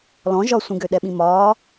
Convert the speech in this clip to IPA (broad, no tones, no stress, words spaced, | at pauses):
lɔ̃ ʒɒsʷĩɡø ɗɛɓĩmɒː